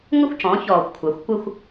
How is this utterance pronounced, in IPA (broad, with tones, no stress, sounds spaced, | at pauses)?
ŋ ʊ˥˨ xʷ c ɔ̃ː˩˥ ç ɔː˨˩ xʷ kʷʰ ɑ˩˥ xʷ kʷ ɪ˥˨ xʷ